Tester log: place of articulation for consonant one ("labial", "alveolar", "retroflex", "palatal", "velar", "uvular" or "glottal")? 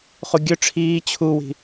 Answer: uvular